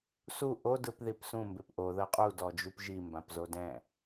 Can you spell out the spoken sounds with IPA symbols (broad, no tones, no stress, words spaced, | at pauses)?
su ʔo dɯpðipsũ mbepʔo ðɤqʼu dɔd͡ʒupʒi mbãpzodɛ̃